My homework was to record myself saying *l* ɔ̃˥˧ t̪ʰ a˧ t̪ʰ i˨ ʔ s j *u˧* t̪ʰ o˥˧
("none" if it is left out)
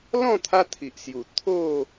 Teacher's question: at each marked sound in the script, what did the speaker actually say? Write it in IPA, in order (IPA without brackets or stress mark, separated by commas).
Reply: l, u˨˩